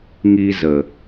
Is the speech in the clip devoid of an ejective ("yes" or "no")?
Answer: yes